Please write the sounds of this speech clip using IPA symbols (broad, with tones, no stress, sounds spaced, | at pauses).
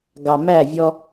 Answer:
ɡ ɑ˨ m æ˦˨ vʲ ɔ˦